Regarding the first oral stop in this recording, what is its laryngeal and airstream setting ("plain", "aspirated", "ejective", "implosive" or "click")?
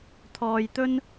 aspirated